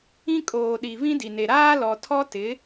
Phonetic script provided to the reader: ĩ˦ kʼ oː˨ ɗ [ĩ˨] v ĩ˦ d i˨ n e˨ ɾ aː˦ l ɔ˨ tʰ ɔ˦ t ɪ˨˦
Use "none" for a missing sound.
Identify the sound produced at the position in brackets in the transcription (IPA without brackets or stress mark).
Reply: i˨